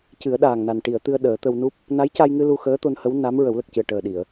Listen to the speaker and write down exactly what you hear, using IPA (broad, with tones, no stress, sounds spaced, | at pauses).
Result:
c ɨ˨˩˦ ə̯ ɗ aː˨˩ ŋ n a˨˩ n ʈ i˨˩˨ ə̯ t̪ ɨ˧ ə̯ ɗ əː˨˩˦ t̪ ə˧ w n u˦˥ p̚ | n a˧˥ j c a˧ j ŋ ɨ˧ l u˧ x əː˧˥ t̪ o˧ n h ə˧˥ w n a˧˥ m ɹ ə˨˩˦ w l ə˨˩ k̚ c ɨ˨˩ ə̯ ʈ əː˨˩ ɗ i˨˩˨ ə̯